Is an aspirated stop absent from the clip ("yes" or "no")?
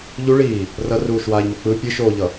yes